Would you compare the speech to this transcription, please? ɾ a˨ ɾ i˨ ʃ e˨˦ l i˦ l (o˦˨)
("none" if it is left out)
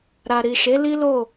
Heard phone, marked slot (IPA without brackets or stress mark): o˦˨